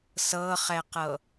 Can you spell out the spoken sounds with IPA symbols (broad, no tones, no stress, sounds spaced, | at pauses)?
s ɤ χ ɛ q ɤ